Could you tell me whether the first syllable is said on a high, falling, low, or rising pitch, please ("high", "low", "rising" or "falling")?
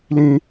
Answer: high